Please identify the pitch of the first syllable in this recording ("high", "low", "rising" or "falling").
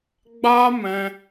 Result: high